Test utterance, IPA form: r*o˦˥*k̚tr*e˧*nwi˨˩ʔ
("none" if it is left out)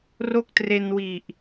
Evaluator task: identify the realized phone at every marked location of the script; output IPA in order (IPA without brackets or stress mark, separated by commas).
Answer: o˥˩, e˧